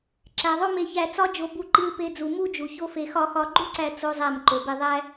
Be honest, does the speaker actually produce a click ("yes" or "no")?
yes